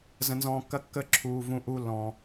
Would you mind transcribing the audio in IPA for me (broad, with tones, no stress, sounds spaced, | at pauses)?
z ə̃˨ n z ɔ̃ː˨ kː ɐ˧ kː ə˧ ǁʰ uː˨ v ũ˧ ʔ uː˦ lː ɔ̃ː˨